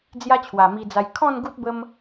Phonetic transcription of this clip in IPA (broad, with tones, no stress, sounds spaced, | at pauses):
d͡z j a˦ t͡ɕʰ w a˨˩ m i˧ d͡z a˧ j kʰ ɔ̃˥˧ n ɡ u˦ t̚ b ə˦ m